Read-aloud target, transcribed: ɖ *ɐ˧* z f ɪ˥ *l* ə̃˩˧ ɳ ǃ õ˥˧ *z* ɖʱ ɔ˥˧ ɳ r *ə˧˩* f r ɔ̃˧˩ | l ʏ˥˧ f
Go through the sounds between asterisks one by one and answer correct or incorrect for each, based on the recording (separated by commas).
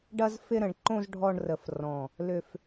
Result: correct, incorrect, correct, correct